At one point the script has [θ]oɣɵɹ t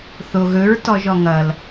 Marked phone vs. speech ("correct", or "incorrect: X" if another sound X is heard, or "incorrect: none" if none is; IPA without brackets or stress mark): correct